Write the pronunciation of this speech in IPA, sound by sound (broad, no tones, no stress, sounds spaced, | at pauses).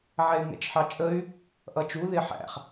ʕ ɛ y̯ ŋ ɛ̰ t͡ʃ ħ ɑ t͡ʃʼ ə y̯ | ʔ ʌ t͡ʃ u ð ɪ ħ æ̰ χ